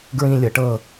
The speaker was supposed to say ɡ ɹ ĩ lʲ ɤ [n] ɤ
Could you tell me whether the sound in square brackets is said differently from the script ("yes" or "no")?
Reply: yes